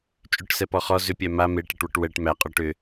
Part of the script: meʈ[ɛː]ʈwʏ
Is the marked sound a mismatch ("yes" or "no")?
yes